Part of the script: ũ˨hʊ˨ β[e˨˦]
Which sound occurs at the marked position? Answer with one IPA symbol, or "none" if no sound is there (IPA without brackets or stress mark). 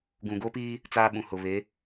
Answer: e˨˦